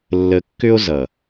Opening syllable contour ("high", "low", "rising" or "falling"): low